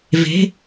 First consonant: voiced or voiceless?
voiced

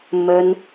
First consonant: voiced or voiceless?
voiced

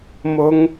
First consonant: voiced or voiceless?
voiced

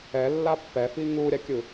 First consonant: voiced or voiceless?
voiced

